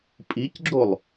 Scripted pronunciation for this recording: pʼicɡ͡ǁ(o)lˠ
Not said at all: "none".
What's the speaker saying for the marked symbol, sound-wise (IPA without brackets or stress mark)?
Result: o